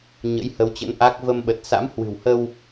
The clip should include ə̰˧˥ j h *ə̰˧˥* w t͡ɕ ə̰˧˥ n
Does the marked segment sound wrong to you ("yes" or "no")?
yes